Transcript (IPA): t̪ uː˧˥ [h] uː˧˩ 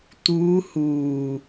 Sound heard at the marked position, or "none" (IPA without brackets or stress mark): h